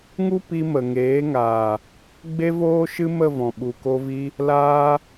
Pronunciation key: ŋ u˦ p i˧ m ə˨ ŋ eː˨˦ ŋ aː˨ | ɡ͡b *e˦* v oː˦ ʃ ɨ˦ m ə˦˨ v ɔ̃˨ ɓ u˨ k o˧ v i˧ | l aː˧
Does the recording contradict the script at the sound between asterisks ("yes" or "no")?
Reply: no